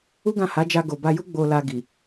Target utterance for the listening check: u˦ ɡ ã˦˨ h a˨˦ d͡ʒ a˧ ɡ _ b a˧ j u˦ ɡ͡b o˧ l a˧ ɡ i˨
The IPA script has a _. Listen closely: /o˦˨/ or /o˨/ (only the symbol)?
o˨